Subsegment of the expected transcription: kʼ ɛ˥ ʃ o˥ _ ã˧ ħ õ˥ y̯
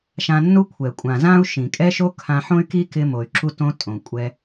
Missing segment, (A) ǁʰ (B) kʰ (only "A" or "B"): B